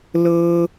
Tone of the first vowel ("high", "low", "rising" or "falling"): high